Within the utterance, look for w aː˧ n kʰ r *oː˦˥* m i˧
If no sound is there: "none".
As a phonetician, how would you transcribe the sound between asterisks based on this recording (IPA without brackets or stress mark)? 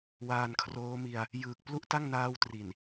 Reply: oː˦˥